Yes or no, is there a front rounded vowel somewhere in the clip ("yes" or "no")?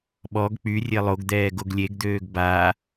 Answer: yes